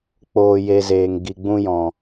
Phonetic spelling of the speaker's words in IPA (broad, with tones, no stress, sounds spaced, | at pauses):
k͡p oː˧ j e˧ z eː˨ ŋ ɡ i˨ ɡ͡b ũ˧ j ɔ̃˨